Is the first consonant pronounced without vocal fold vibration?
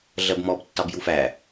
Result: no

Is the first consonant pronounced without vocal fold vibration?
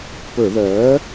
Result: yes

